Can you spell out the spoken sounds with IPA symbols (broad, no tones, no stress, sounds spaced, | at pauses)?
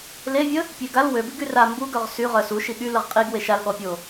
l e vʲ ə | pʲ e ɡ a l w ø b i ɡ y r a m b u ɡ œ ʁ s y ʁ œ s u ʃ i ɠ y l ə ʁ qʼ i ɡ w e ʃ a l ɠ ɔ pʲ o